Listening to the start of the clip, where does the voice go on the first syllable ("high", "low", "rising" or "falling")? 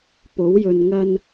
rising